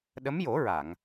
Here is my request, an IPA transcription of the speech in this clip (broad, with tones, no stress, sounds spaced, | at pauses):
ɗ ə˧˥ m j o˨˩˦ ɹ a˨˩˨ ŋ